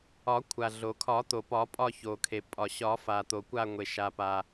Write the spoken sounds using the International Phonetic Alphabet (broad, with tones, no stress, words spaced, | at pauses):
ɒ˨˩˦kʷʰa˩ɮo˩kʰɒ˨˩˦ t̪o˩pɒ˨˩˦pʼɒ˦˨ ço˩kʰe˩ pʼɒ˩ɕɒ˨˩˦ fa˩t̪o˩kʷa˦˨ŋʷe˩ ʃa˩pa˩